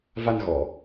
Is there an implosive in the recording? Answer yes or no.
no